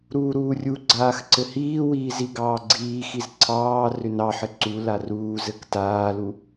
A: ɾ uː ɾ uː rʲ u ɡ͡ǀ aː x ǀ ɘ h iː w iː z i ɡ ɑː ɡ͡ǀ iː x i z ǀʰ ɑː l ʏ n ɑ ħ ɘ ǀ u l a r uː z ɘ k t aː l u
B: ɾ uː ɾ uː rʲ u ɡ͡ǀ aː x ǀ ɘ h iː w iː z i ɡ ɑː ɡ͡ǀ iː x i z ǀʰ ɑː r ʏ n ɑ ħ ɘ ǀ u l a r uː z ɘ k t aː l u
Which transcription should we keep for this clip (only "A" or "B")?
B